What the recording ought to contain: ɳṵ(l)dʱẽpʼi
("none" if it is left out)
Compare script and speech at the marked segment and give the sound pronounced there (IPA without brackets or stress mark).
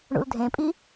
l